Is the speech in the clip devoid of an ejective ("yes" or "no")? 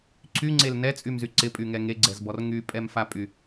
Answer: no